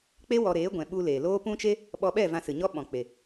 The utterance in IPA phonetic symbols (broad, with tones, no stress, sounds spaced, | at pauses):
k͡p e˦ w ɔ˧ ɾ eː˨˦ ɡʷ ɛ̃˨ ɓ u˧ l eː˨ l oː˦ p ũ˦ t͡ʃ e˦ | ɓ ɔ˧ ɓ ɛ˦˨ v ã˧ s ɨ˨ ɲ ɔ˦ ɓ ɔ̃˨ k͡p e˨